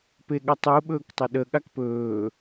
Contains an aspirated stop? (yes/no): no